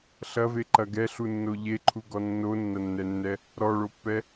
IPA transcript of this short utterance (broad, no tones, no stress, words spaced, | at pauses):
ɬɐveǃɐ ɡɛɬunːo ʎeǃʰuɡɔ nːonːɐnːɛnːɛ | ɾɔɭopːɛ